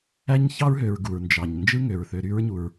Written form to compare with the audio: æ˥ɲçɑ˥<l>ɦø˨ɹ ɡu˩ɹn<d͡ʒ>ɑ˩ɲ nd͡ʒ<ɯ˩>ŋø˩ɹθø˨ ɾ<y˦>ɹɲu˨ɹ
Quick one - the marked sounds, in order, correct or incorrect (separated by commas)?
incorrect, correct, incorrect, correct